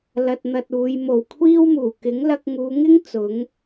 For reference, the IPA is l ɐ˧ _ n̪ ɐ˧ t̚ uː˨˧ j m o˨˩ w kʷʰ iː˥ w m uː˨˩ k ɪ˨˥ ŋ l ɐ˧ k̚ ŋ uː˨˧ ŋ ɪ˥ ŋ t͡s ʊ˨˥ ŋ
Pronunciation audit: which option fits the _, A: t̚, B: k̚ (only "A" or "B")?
A